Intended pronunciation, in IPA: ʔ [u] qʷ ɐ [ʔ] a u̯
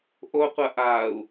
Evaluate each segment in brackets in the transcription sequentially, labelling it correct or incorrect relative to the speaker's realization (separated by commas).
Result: incorrect, correct